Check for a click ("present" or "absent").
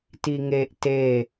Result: absent